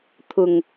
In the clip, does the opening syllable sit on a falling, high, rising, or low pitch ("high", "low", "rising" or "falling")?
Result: low